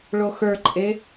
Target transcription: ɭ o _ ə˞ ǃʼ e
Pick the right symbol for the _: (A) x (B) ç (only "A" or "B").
A